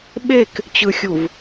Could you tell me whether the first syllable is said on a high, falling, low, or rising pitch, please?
falling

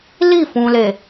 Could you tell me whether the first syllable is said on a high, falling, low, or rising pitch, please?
falling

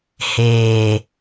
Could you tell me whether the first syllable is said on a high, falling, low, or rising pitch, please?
low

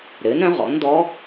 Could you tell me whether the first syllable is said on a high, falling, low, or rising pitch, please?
rising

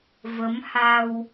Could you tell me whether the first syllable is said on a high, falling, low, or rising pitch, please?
rising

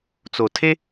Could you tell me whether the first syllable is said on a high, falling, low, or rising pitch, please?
low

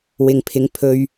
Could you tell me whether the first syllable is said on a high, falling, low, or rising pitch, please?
low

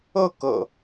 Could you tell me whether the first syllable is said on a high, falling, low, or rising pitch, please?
falling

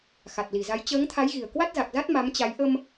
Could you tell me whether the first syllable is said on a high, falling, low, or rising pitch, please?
low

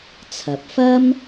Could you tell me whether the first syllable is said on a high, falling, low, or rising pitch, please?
rising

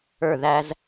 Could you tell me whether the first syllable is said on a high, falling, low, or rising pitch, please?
falling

